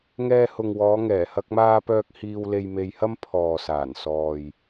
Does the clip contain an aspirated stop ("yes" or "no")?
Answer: yes